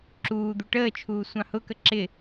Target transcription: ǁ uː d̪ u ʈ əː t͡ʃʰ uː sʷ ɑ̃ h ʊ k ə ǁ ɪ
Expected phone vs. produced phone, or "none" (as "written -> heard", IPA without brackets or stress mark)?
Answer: none